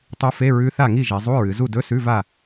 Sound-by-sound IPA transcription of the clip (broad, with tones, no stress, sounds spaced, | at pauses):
tˤ u˧˥ f e˧˥˧ ɹ ʉ˧˥ θ a˦˨ ŋ i˦˨ ʒ e˩˧ zˤ u˧˥˧ ɹ ɨ˩˧ z u˦˨ d ɵ˧˥˧ s ʉ˧˥˧ v a˦˨